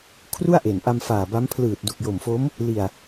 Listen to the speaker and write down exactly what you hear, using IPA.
kʰ r u˥˩ a̯ ʔ e˨˩ n ʔ a˧ m f aː˨˩ b a˦˥ m pʰ l ɯː˨˩ t̚ d u˨˩ k̚ j o˨˩ m f o˦˥ m | l i˧ a̯

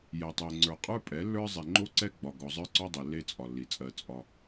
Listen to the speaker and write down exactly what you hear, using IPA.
j ɛ˨ tˤ ɛ˨ ŋ͡ǀ ə˞˨ qʼ ə˞˦ pʼ ɛ˨˦ lː ə˞˦ zˤ e˨ ŋ͡ǃ o˦ ǀ ɛ˦ ɡ͡b ɒ˨ ɡ ɔ˨ zˤ ə˞˦ ǀ ɔ˦ dˤ ɛ˨ lː e˦ t͡sʼ ɒ˨ lː i˨ t͡sʼ ɜ˦ t͡sʼ ɒ˦

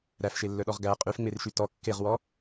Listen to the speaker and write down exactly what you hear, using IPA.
ɾ æ f ʃ e lː œ ɗ ɔ ʁ ɡ æ qʼ y f ŋ͡m e r ʃ y t ɔ kː e ʁ w ɔ

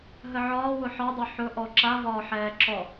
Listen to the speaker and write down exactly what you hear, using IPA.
ɦ ə ʕ ɒː w ʊ ħ ɒ dˤ o ħ ʊ ʔ ɔ ǁ a v ɒː ħ ɛː ǁ ɔ

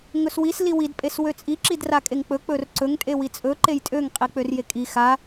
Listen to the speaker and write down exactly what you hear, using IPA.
ŋ ɵ s w i s l i w i d pʼ e s w ø t͡sʼ i ǁ i d r a kʼ e ŋ k͡p ɵ k͡p ɵ r ǀ ɵ ŋ tʼ e w i t͡sʼ ɵ ǃ e j tʼ ø ŋ qʼ i k͡p ø r j e kʼ i x a

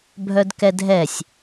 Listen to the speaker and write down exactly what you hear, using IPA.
bʱ œ d k ɛ dʱ ɛ sʲ

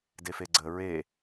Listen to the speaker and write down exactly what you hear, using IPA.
d e f e ɡ͡ǀ ə ɹ e

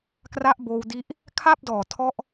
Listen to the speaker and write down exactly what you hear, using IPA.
k r a˦˥ ʔ b oː˧ w d i˦˥ ʔ | kʰ a˥˩ p̚ d ɔː˨˩ tʰ ɔ˦˥ ʔ

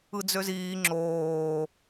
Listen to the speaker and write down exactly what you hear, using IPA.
ɯ d͡z ø z iː ŋ͡ǁ oː

